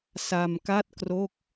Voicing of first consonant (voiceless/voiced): voiceless